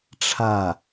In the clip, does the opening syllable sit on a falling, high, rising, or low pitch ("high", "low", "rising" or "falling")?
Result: falling